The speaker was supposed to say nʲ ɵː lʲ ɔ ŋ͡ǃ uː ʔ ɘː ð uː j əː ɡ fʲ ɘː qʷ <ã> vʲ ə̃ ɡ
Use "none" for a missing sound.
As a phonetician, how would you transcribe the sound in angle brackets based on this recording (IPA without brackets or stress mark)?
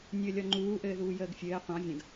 ɑ̃